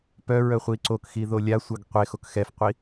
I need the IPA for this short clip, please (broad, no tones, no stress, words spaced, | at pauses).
pœɹœ χʷiǀokxi ðolʲasʷœɡ qʷe xokxɛfqʷi